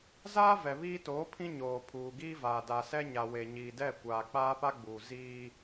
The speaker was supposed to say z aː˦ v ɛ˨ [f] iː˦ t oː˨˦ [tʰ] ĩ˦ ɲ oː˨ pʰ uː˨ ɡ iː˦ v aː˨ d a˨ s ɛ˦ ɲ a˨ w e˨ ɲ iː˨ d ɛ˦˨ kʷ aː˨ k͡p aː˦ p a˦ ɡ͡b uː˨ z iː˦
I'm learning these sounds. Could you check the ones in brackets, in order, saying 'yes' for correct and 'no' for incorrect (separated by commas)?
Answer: no, no